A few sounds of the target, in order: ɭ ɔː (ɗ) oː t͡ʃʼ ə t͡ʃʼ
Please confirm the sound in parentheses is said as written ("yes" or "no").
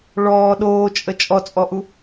yes